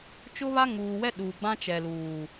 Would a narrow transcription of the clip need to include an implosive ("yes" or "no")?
yes